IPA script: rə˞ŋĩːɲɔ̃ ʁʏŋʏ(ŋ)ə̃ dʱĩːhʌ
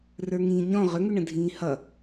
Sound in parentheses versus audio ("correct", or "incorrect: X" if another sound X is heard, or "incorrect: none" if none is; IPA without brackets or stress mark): incorrect: ɳ